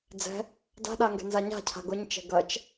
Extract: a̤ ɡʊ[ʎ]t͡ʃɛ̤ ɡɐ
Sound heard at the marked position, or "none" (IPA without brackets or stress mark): ɲ